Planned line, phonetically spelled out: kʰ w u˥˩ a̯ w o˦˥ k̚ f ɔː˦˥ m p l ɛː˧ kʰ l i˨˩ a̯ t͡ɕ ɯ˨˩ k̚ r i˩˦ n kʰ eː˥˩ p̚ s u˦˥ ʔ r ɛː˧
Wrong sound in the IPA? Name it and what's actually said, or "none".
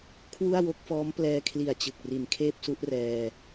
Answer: none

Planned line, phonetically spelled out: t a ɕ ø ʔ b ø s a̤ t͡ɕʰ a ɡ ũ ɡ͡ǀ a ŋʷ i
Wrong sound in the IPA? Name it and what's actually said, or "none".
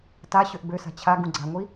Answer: none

